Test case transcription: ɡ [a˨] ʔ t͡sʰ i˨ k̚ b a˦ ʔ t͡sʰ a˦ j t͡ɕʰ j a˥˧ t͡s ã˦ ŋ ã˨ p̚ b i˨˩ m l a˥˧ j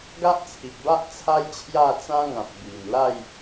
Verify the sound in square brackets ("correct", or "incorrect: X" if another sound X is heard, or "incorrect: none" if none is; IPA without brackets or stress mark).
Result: incorrect: a˦